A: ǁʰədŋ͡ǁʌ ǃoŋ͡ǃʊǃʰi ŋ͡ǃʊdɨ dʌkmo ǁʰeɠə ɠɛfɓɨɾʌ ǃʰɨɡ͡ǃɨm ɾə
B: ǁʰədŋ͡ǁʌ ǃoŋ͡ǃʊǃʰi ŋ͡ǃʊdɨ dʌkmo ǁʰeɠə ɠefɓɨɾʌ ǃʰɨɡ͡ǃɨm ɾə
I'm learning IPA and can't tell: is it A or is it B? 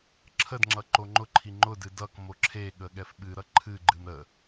A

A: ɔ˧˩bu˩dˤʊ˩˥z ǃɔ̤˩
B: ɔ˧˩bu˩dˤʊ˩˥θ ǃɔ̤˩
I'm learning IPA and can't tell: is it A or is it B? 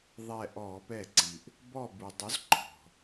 A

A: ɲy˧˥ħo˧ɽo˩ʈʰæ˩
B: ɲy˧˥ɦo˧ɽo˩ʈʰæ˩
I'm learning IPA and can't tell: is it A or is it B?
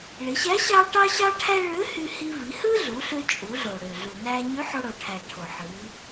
A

